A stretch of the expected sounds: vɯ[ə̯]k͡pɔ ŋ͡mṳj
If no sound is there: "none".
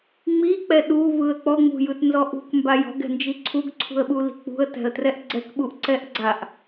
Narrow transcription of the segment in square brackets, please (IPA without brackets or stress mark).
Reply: ə̯